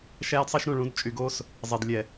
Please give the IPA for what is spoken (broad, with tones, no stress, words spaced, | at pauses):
ʃæː˦dsˤɛ˦ʃɾũ˦˨ ɭũ˨˦dt͡ʃʼy˨ɡoː˦s | zˤe˨dlʲɛ˨